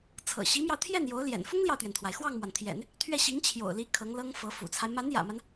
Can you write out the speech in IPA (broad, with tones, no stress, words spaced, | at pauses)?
t͡sʰɤ̰˨˩ɕi˧˥mjɑ˧ʊ̯t̪ʰjɛ˥˩n jo˧˥ʊ̯ljɛ̰˨˩n fʊ˥ŋljɑ˨ʊ̯t̪ɥɛ˩nt̪ʰwa˩ɪ̯ xwɑ˥˩ŋmwa˩nt̪ʰjɛ̰˨˩˦n | t̪ʰɥɛ˥˩ ɕi˧˥ŋt͡ɕʰjo̰˨˩ʊ̯li˧˥ kʰɤ˧˥ŋlɤ˥ŋfɤ˧˥ fṵ˨˩t͡sʰa˦ɪ̯ ma˧˥njä̰˨˩ma˦n